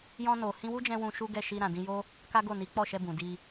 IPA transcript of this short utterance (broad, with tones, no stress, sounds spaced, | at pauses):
j ɔ̃˧ n o˨ h ĩ˧ w u˦ d͡ʒ ɛ̃˧ w ũ˧ ʃ u˦ ɡ ɛ˦˨ ʃ i˧ ɾ ã˨ d ĩ˧ j o˦ | k a˦ ɡ o˦˨ n i˨˦ k͡p ɔ˦˨ ʃ ɛ˧ b ũ˨ d i˧